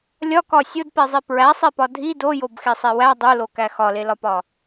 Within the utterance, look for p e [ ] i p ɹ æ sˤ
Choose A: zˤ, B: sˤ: A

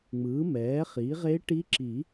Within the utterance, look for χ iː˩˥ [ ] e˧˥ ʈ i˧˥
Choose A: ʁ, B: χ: A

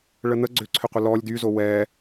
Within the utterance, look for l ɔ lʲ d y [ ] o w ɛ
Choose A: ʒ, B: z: B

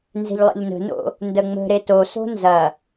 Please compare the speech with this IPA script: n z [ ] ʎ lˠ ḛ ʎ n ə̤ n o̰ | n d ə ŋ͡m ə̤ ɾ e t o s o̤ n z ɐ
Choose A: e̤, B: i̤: A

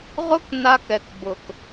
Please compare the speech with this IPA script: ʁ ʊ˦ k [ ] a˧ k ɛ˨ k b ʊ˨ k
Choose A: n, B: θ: A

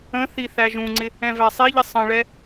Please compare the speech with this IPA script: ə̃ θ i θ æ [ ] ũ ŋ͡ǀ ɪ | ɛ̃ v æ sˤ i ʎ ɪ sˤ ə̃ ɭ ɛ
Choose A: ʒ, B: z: A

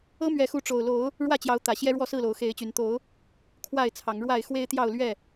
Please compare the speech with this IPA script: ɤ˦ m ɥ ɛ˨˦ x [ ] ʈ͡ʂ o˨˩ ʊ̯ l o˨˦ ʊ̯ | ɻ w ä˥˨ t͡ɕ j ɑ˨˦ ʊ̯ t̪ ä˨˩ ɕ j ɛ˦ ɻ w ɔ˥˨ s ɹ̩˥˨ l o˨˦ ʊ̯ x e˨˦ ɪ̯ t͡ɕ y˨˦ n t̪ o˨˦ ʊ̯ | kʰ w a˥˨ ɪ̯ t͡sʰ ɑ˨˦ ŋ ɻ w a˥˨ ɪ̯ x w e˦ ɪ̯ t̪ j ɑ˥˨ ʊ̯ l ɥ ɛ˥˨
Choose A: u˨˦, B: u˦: A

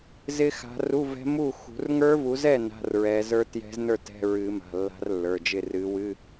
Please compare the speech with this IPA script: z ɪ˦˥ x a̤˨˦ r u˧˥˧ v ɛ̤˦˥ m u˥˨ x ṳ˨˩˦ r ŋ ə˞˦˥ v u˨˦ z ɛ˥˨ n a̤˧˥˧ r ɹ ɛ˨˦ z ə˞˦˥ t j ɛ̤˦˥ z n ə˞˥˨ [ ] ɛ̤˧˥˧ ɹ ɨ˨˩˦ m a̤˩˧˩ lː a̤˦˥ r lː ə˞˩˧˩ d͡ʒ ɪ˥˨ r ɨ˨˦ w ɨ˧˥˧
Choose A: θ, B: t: B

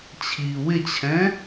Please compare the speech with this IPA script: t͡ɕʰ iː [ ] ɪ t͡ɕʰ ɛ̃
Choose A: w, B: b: A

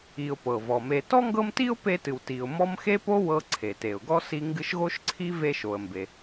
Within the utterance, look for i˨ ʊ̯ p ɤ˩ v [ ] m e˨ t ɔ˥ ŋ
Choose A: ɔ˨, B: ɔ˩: B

